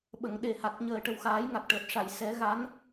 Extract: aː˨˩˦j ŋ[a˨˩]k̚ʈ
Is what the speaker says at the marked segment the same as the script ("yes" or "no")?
yes